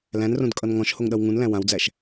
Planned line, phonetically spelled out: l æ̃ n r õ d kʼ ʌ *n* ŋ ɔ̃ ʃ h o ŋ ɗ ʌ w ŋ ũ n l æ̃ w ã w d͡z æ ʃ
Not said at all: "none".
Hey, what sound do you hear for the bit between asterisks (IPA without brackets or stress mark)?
n